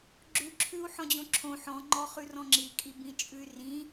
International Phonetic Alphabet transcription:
ɡ͡ǁʉǁʰʉu̯ħɔ̃d͡ʑõ ǁʰõ ħɔ̃ŋ͡ǃɔχʉrɔ̃ ŋ͡ǁikʼibĩt͡ʃʼʉy̯ rĩ

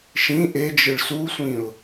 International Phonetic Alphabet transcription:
ʃĩ ʔed͡ʒɯɭ susʷĩʊ̯

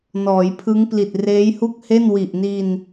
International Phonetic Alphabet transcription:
nɔː˩˦jpʰɯ˦˥ŋ pli˨˩t̚reː˦˥jhu˥˩k̚he˥˩n wi˨˩ʔni˧n

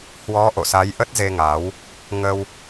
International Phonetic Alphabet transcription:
hwɔ˨˦ʔo̰˧˨sa˨˦j ʔə˦˥t̚ze˧ŋa˨˦w | ŋə˧w

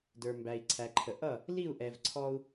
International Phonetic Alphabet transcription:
də˞˨mbæ˨i̯ ǀʰæ˨ǃʰə˨ ʔʌ˦˨ | li˦˨u̯ʔɛ˨v ǀʰɔ˦u̯

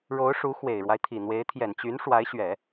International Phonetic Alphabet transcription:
ɻo˧˥ʊ̯ʂu˧˥ xwe˨˩ɪ̯ɻwa˦ɪ̯t̪ʰi˨˩n̪we˧˥ɪ̯ t̪ʰjɛ˨˩nt͡ɕy˧˥n ʂwa˧˥ɪ̯ɕɥɛ˨˩˦

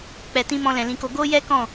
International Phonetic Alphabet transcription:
k͡pɛ˨tĩ˧ mɔ̃˧lɛ̃˨lĩ˧ko˧ ɡo˦jɛ˦ kɔ̃˦˨

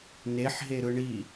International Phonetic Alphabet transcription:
neħɦeɾɯ ɳi

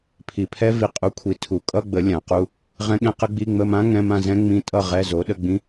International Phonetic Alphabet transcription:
pʰi˨pʰɛ˦˥ vi˨ qʼu˨˥ kʷʰi˨ tʰu˨˩˦ kʼʌ˧˥˧ɡ͡bə˨˩˦ lʲã˨˩˦qu˧˥˧ | ʁɛ̃˦˥ɠɛ̃˦˥qə˦˥ɡ͡bi˧˥˧ ŋ͡mə˧˥˧mã˦˥ ŋɛ̃˧˥˧mã˥˧zɛ̃˦˥ ŋ͡mĩ˦˥tʼʌ˥˧ ʁɛ˧˥˧zo˨˥ ɗə˧˥˧ɡ͡bĩ˦˥

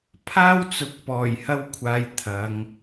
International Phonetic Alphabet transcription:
pʰaː˥wt͡sʊ˨k̚ pɔː˨˩jhɐ˥w kʷʰaː˧jt̪ʰɐ˨˧ŋ

